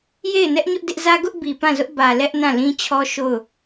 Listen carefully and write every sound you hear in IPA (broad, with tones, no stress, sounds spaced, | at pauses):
j e˦˨ ɪ̯ n ɛ˦ ʔ ɲ ʊ˦ ʔ d ɪ˦ ʔ z ä˦ ɡ ʊ˦ ʔ b i˨ p ã˦˨ z ʊ˦ ʔ b ä˨ l ɛ˦ ʔ n ã˦˨ l ĩ˦ t͡ɕʰ ɔ˦ ʃ o˦˨ ʊ̯